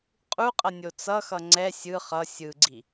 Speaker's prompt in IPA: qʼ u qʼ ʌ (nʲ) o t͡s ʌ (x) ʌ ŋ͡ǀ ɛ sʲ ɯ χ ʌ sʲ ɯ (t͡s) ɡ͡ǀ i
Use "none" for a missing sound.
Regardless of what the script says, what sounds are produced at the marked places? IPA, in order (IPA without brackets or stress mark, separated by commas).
nʲ, x, none